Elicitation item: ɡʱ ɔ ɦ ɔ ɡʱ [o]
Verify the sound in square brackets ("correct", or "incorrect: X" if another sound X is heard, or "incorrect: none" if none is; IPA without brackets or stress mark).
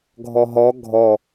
incorrect: ɔ